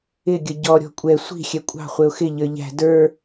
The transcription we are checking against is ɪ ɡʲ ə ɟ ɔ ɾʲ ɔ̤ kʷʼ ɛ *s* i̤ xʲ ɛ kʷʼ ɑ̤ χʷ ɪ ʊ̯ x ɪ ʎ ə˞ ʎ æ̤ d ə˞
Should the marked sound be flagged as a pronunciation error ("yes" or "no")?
yes